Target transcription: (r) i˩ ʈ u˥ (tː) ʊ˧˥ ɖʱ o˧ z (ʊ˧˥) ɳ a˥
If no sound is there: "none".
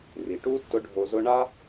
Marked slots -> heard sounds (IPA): r, tː, ʊ˥

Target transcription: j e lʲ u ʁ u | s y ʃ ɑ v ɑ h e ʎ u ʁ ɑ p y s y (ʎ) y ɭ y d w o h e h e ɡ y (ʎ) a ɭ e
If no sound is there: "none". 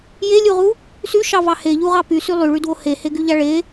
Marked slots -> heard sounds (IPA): lˠ, ʎ

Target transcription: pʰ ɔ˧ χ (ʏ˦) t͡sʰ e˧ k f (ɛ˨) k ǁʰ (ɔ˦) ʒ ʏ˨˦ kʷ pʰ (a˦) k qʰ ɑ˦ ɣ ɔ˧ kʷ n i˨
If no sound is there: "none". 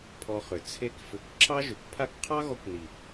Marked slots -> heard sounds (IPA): ʏ˨, ʏ˨, ɑ˦, a˦

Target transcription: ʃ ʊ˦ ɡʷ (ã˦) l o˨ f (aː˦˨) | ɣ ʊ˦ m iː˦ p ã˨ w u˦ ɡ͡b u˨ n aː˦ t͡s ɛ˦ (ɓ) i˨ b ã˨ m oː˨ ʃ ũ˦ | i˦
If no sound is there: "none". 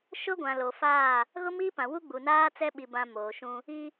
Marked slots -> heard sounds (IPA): ã˨, aː˦˨, ɓ

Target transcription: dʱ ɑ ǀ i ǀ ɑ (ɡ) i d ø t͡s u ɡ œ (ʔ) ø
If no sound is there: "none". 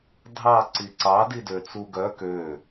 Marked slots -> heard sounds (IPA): d, k

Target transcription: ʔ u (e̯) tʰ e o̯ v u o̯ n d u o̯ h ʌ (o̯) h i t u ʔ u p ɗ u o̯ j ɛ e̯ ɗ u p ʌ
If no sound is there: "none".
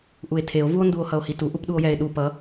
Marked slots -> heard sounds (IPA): e̯, o̯

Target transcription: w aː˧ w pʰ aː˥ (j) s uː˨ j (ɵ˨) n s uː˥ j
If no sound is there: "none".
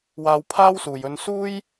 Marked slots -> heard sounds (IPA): w, ɵ˧

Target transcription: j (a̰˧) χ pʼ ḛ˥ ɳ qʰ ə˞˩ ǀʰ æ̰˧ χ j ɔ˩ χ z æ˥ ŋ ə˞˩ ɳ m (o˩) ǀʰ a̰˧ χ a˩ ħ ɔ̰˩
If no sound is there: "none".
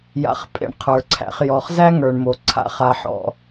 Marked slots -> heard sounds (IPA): a̰˧, o˩

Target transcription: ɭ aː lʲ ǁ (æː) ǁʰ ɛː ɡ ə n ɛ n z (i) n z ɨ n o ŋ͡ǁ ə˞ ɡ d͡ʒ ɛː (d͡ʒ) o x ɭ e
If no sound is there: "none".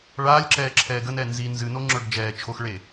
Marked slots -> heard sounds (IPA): ɛː, i, t͡ʃʰ

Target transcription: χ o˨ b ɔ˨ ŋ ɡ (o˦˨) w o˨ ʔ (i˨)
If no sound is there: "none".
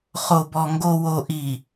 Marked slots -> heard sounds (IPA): o˨, i˨

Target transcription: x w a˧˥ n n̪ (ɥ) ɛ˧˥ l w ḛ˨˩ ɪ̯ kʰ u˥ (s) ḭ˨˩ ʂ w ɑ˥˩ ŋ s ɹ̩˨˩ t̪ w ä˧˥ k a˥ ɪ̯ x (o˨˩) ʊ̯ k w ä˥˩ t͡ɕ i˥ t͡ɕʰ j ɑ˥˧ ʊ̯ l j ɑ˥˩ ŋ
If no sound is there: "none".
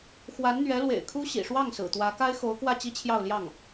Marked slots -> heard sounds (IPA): ɥ, ɕ, o˧˥

